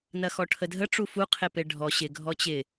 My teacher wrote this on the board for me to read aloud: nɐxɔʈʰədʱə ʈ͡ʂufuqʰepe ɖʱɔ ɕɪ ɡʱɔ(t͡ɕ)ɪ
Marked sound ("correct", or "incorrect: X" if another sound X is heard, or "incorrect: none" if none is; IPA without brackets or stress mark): correct